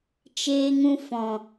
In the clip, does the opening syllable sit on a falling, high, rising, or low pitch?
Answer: high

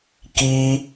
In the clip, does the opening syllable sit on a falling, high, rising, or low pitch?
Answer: high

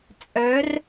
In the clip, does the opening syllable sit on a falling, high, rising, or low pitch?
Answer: rising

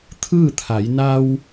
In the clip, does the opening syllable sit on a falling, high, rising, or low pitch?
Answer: falling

